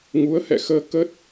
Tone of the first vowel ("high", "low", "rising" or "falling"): rising